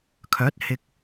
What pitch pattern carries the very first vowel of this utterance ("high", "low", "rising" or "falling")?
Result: rising